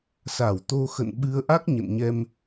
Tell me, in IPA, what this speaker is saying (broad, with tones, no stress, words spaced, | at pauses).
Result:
sa˧˩wt̪o˧xə̰˧˨n ɓɨ˧ə̯ ʔa˦˥k̚ ɲə̰˧˨nɲɛ˧m